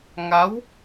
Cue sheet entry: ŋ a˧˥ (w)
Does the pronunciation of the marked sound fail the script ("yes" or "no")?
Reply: no